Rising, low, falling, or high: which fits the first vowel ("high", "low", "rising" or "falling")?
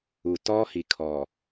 low